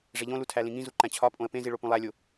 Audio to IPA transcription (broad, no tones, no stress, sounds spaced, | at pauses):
ʐ e ʎ õ l u tʰ æ l ĩ ŋ ĩ z u ǃ æ̃ t͡ɕʰ ɒ pʼ õ ə̯ p ẽ z i ɭ o p ũ lˠ æ lʲ o